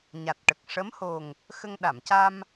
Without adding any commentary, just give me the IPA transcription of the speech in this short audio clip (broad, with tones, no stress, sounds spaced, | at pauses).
ɲ a˨˩ t̚ ʈ ə˨˩ k̚ ʂ ə˧˥ m h o˨˩ ŋ | x ə˧ ŋ ɗ a˨˩˨ m c a˧ m